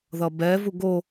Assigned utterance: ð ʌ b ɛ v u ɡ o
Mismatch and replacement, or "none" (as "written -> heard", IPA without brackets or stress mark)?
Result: none